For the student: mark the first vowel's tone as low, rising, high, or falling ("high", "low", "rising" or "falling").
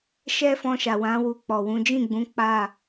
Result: high